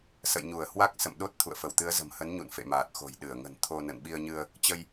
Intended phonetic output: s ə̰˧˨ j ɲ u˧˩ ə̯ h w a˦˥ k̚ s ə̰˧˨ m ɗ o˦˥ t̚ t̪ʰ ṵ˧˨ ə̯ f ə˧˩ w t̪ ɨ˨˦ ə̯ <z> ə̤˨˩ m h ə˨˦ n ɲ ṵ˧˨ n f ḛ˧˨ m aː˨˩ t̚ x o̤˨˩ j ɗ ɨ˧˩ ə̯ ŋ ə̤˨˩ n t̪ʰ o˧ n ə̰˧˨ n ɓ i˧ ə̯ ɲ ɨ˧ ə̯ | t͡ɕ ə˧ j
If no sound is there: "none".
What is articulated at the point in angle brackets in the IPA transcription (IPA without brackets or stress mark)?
z